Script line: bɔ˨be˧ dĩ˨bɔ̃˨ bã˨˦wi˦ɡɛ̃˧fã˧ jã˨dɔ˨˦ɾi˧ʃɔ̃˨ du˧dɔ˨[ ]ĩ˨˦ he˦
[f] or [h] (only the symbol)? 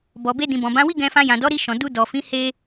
f